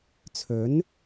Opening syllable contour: rising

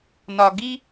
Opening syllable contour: low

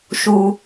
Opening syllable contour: low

